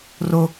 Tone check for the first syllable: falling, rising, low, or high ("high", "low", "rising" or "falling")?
high